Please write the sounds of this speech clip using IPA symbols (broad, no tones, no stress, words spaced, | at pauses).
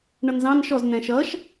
ɳʌnzɑ̃n ʃɔz n̪ɛ̃ʃʌʃ